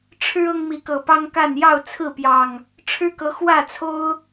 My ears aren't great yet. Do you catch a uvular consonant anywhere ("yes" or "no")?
no